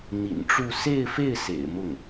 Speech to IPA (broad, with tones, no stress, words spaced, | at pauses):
n̪ḭ˨˩nʈ͡ʂu˥˧ se˥˧ɪ̯fe˥˩ɪ̯ sḛ˨˩ɪ̯mʊ˥˩ŋ